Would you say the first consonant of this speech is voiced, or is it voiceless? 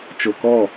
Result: voiceless